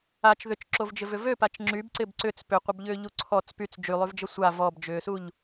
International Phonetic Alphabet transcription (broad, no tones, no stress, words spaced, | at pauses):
at͡ʃ ðʏt͡ʃǁovd͡ʒɪvʏ vøpat͡ʃ ŋ͡ǁybǀɪb ǀʏt͡s pʏqʷəbʎʏːʎu ǀʰɔt͡s pyt͡s d͡ʒylˠyvd͡ʒə sʷa vɔbd͡ʒʏːsuʎ